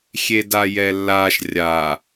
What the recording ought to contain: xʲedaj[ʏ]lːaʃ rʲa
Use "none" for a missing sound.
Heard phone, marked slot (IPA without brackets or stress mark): ɛ